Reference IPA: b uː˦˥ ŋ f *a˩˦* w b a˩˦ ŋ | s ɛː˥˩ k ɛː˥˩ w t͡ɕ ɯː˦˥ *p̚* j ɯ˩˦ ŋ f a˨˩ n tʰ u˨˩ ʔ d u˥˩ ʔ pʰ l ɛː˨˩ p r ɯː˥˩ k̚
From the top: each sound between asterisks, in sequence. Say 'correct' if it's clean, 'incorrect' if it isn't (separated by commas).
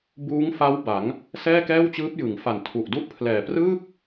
incorrect, correct